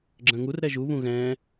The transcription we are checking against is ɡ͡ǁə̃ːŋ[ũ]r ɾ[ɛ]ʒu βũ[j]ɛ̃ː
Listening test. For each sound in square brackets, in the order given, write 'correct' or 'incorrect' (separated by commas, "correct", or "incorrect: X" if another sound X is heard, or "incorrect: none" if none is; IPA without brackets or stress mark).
incorrect: u, correct, incorrect: ɣ